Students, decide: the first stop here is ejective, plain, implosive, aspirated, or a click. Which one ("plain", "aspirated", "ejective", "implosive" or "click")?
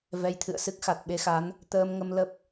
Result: aspirated